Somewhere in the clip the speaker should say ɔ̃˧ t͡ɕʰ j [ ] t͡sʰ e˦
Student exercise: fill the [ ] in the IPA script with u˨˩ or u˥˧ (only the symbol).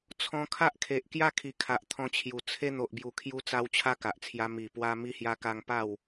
u˨˩